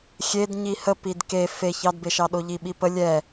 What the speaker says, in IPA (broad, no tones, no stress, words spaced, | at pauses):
xʲed ɲihə pidke feç ɑdbeʃɑɗo ʎiɓipə lʲɛ